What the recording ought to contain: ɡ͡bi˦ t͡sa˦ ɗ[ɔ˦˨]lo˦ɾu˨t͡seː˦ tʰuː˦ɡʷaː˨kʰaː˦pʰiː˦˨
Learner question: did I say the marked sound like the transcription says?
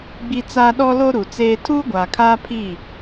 no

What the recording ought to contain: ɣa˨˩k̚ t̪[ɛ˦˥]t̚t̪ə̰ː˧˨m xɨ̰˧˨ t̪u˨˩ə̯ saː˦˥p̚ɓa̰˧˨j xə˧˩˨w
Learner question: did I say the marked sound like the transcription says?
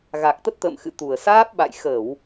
no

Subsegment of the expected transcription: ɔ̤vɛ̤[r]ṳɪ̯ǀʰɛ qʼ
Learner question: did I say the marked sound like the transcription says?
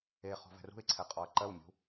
yes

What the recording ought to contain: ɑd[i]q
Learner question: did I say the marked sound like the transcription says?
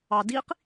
yes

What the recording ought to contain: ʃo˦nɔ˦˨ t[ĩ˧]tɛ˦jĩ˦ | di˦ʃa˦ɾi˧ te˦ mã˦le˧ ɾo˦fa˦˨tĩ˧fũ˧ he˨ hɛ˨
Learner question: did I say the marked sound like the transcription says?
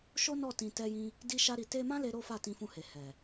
yes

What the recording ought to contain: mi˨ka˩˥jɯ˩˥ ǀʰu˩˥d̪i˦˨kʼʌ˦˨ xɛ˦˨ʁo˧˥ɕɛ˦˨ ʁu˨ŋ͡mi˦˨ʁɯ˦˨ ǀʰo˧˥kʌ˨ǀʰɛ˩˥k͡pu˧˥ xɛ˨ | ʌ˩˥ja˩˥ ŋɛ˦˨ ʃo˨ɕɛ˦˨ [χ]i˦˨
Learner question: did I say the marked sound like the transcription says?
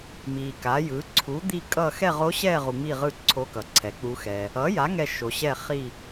yes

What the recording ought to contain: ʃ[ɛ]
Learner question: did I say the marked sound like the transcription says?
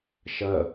no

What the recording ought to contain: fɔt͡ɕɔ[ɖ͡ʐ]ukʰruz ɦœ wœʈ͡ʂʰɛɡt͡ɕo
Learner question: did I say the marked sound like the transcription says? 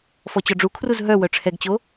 yes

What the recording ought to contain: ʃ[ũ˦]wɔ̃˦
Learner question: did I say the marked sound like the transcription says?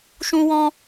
yes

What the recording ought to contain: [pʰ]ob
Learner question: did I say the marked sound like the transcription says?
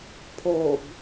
yes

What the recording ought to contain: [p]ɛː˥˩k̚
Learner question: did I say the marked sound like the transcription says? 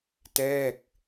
no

